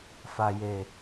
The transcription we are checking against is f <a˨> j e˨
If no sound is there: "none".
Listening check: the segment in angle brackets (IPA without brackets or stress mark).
a˨